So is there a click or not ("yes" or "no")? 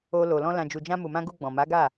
no